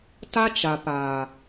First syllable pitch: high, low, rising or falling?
high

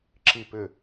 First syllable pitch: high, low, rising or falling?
falling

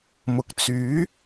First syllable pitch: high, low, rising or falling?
low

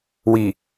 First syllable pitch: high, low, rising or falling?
low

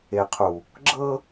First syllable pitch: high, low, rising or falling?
low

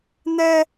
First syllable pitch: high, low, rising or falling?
high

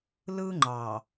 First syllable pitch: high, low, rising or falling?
high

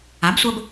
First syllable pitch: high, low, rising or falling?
rising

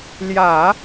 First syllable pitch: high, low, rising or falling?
low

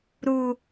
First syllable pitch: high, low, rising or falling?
high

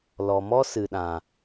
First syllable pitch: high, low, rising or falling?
low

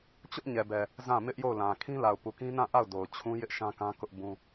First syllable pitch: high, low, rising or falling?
high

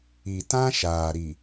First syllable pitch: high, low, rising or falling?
low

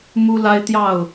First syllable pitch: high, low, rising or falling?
high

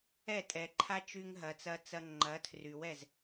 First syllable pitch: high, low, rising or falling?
falling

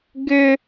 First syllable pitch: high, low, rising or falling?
high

